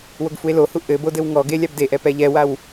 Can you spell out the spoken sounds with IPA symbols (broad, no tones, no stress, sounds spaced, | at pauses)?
w o ɡ f u e̯ l o h u ʔ ɘ b o d ɘ w ŋ ɔ ɡ e lʲ a b d e ʔ ɛ p ɛ ʎ ɛ w a w